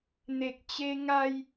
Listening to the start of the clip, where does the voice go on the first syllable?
low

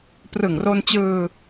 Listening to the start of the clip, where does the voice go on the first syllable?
low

